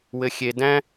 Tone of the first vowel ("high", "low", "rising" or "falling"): low